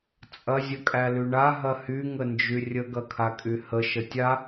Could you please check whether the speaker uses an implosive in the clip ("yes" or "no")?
no